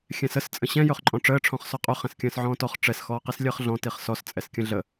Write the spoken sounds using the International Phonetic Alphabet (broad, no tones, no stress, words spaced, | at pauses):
xʲɛ̃səs t͡sʼə̃ɕɛ̃ jɵχǃʼɔ̃ʈ͡ʂəː ʈ͡ʂʰɔ̃χsɔqʼɵ χɛ̃skʲə̃ːsʕɔ̃ːtɔχ ʈ͡ʂɛs xɔːqislʲəːχɮɔ̃ tiχsɔs t͡sʼɛskʲə̃ɮə